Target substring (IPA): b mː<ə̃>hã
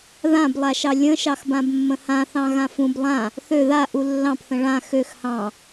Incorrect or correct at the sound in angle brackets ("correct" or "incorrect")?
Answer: correct